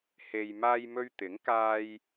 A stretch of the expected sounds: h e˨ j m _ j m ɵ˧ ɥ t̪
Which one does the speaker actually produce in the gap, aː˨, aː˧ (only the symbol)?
aː˧